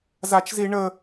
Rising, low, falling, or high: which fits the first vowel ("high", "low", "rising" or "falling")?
high